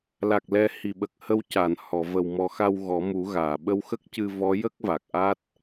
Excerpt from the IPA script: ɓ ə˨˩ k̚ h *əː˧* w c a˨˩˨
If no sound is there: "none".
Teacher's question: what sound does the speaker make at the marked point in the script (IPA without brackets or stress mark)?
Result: ə˧